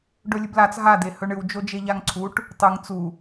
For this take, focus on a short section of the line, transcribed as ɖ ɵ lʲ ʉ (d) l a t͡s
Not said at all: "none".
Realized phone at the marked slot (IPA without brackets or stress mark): b